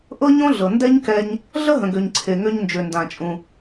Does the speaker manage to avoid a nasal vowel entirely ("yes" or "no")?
no